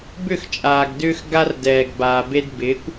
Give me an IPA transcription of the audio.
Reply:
bʏ˦˨xt͡ʃʼaː˨ɡdʏː˦x ɡa˦rdɛː˨ɡbaː˨be˦d bɪː˨˦kʷ

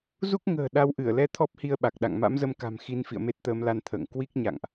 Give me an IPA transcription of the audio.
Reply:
zu˦˥k̚ŋə̤ː˨˩ ɗa˨˦wʔɨ˧˩ə̯lɛ˧ t̪ʰɔ˦˥p̚hi˧ə̯ɓa˨˩k̚ɗa̰˧˨ŋ ma̰˧˥mzə˧mka̤˨˩m xi˧n fḭ˧˨ə̯me˦˥t̚t̪əː˨˦mla˧n t̪ʰə̰ː˧˨ŋ kwi˦˥k̚ ɲa̰˧˨ŋʔ

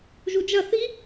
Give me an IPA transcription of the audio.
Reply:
ʒud͡ʒɐ θi

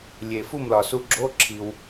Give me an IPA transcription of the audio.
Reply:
lʲe˩fu˥˨mlɒ˩ su˧ɡ͡ǁo˧˥˧ǁʰi˩w

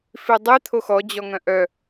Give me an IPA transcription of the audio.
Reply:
fidˤi t̪ʰoxɔ d͡ʑɔŋœ̃ʔœ

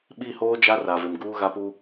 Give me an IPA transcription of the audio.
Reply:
ɓi˦˨hoː˦d͡ʒa˦ ra˨vɪ˨m ɡuː˦ɣa˦pu˦

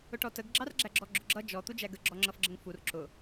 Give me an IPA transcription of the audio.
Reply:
ʊʈɔtəɡ ɡ͡ǁɑrɡ͡ǁæɡ͡ǁɔɡ͡ǁʊ ɡ͡ǁʌ d͡ʒɔ t̪ud͡ʒæɡə ɡ͡ǁɔŋ͡ǁʌfɡ͡ǁəŋfur ǁʊ

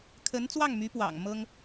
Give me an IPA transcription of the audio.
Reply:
kʰə˧˥nt͡swɑ˥˩ŋmy˧˥pwɑ̰˨˩ŋ mɤ˥ŋ

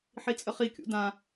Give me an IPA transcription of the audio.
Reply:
ħit͡sʼəχikʲṵ dã

